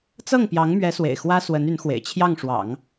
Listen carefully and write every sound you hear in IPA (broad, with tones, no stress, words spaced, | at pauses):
t͡sɤ˥˩ŋ pjɑ˧˥ŋmɥɛ˧˥swḛ˨˩ɪ̯ xwä˥swə˧˥n y˧˥nxwḛ˨˩ɪ̯ t͡ɕʰjɑ˥˩ŋ ʂwɑ̰˨˩˦ŋ